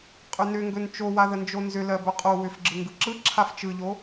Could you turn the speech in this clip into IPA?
qʼ ʏ n ʏ ŋ ɡ ɵ n t͡ʃ o w a ð ə n d͡ʒ o n z ʏ l ɜ b ɵ qʼ o w ʏ f ɡ͡ǁ ɯ ŋ ɡ ɯ ǁ ɯ ǁʰ a f t͡ʃ ɯ ʎ o

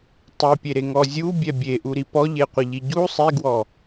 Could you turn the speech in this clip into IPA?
tˤ e pʲ e ɾ e ŋ ɔ zʲ u bʲ ɛ bʲ e ʔ u ɾ i p ɔ ʎ e qʷ ə ʎ i ɟ u sˤ i ɡ w ɔ

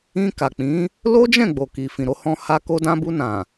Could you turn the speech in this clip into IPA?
ĩ˧ k a˨ k͡p ĩ˨˦ | l o˦ d͡ʒ ɛ̃˦˨ ɡ͡b o˨ k i˨ f ĩ˨ ɾ o˧ h ɔ̃˧ h a˧ k o˧ d ã˧ b u˧ n ã˨

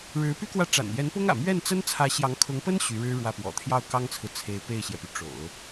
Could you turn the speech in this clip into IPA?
ɻ ɻ̩˧˥ p y˥ k w ä˥˩ ʈ͡ʂ a̰˨˩ n j ɛ˧˥ n p ʊ˥ ŋ ä̰˨˩ m ɥ ɛ˥˩ n t͡s ə˥ n t͡sʰ ä˧˥ ɕ j ɑ˧˥ ŋ kʰ ʊ˧˥ ŋ p ə˥ n ɕ y˧˥ ɻ ɻ̩˥ ɻ w ä˥˩ p w ɔ̰˨˩ t̪ʰ j ɑ˥˩ ʊ̯ k ɑ˥ ŋ t͡sʰ ɹ̩˨ t͡sʰ e˧˥ ɪ̯ p e˥˩ ɪ̯ ɕ j ɛ˩ p y˩ ʈ͡ʂ o̰˨˩˦ ʊ̯

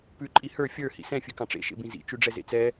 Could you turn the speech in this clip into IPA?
p ʉ ǃʼ i h ə˞ fʲ ə˞ h ḭ s ɛ̃ fʲ ʉ k ɑ̃ ʈ͡ʂ ḛ ʃ ḛ b ĩ z ḭ t͡ʃ ʉ ɖ͡ʐ ɛ z ḛ t͡s ɛ

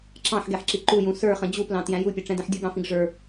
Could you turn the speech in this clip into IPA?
ǁ ɑ̃ ħ ɡ ɛ ħ ǁ i ǃ u j ũ s ə˞ χ ə̃ d͡ʑ u p l ɑ̃ t j æ̃ j u pʲ ʌ ʈ͡ʂ ɛ̃ d ɛ̃ ħ dʲ u ɡ ɑ̃ f ĩ ɡ ʐ ə˞

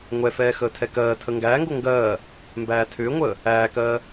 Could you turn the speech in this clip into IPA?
ŋʷ ɛ f ɛː x əː tʰ ɛ k ɜː tʰ ə ŋ ɡ æː ŋ ɡ o ŋ ɡ ɜː | m b æː tʰ ʏː ŋʷ əː | æː k ɜː

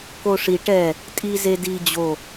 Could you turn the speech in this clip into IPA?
k o ʂ i ʈ ɛ | tʼ i z e d i d͡ʑ o

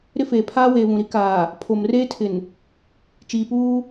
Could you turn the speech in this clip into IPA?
ɾ ɪ˦ f eː˨ pʰ aː˦ w eː˨ β ũ˨ ɾ i˦ k aː˨ | pʰ o˨ m r eː˦ tʰ ɪ˨ n | t͡ʃ iː˨ p uː˦

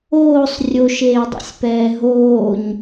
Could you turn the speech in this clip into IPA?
oː sˤ rʲ o ʃ eː dˤ o̰ sʲ p ɛː ɦ oː ɲ

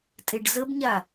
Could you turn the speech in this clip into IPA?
tʼ e ɖ z ə b ɲ a

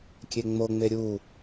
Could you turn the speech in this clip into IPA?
kʲ e ŋ͡m o ŋ͡m e ɾʲ u

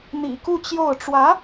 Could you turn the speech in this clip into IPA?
n̪ ḭ˨˩ k u˥˧ t͡ɕ j o˥˩ ʊ̯ ʈ͡ʂ w ä˧˥

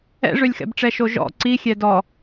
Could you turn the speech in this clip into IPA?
ɛ̰ ʐ ø lʲ x ɛ̰ b ʈ͡ʂ ɛ ʃ o ʒ ɔ̰ ǀ i xʲ ɛ d ɔ

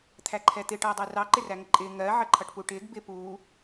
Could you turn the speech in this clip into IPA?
t̪ʰ æ ǃʰ ɛ t̪ ɪ ʈ ʌː dˤ ɪː r ɑ ǃ ɪ r æ ŋ ə ǃʼ ɪː ŋ ɜ ʕ ə ǃʰ ʌ ʈ p u ʈ ɪː ɡ b ɪ p uː

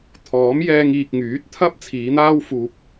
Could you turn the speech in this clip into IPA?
t̪ʰ ɔː˨˥ m j ɛː˧ ŋ iː˨ k̚ ŋ yː˨˥ t̚ t̪ʰ ɐ˥ p̚ t͡sʰ iː˨˧ n̪ aː˥ w f uː˧ p̚

